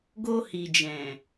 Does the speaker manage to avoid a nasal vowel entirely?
no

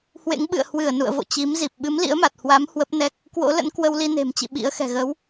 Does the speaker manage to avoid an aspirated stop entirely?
yes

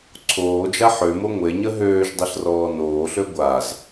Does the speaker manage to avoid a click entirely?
no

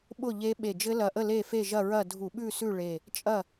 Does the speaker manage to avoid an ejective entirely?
no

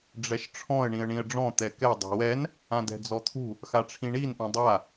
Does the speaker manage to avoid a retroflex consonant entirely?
no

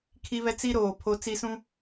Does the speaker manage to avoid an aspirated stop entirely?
no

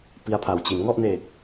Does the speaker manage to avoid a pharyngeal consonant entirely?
yes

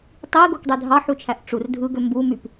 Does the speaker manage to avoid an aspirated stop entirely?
no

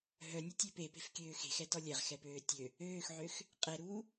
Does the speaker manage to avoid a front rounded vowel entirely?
no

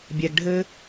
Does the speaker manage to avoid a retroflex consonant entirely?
no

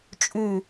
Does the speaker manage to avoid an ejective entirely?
no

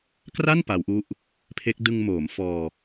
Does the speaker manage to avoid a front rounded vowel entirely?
yes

